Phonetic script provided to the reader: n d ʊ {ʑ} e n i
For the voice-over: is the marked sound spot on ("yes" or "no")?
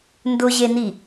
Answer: yes